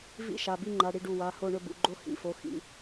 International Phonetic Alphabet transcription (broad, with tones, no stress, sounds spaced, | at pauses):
v ḭ˥˨ ʃ a˩˧˩ b i˥˨ ŋ͡ǃ a˩˧˩ ɽ i˥˨ ɖ u˩˧˩ w a˩˧˩ h o˥˨ ɳ ɵ˥˨ b ṵ˩˧˩ ɡ͡ǃ o˥˨ h ḭ˩˧˩ f o˩˧˩ x ḭ˩˧˩